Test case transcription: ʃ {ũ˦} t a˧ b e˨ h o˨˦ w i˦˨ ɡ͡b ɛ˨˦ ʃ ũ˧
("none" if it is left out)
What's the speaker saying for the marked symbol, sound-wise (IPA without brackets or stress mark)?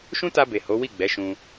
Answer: ũ˦